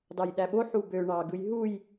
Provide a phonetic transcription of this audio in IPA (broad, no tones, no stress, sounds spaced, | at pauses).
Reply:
d ɑ j ɗ æ ɓ o ħ u b ø ɳ ɑ ɡ ɯ j ɦ u j